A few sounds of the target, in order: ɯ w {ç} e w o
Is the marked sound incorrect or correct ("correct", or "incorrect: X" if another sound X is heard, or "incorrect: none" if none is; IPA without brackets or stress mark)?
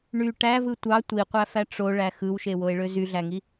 incorrect: ʃ